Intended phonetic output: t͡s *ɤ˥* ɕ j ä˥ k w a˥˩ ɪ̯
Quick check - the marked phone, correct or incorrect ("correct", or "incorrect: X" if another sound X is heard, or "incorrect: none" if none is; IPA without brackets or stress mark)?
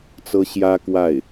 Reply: correct